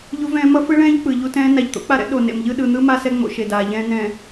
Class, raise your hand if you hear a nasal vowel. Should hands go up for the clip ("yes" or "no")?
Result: yes